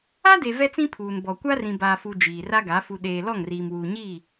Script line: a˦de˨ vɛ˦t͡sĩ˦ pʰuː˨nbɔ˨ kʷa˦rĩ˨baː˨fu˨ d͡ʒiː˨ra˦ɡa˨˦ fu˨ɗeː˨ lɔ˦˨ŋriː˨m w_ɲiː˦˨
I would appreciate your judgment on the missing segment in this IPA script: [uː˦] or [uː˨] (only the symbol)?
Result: uː˨